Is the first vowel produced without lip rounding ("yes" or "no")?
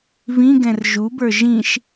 yes